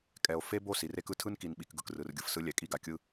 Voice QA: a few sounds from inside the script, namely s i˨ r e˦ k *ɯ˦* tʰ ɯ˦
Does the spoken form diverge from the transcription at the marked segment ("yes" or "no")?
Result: no